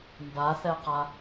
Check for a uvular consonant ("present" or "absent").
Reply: present